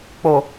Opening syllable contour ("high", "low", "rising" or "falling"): low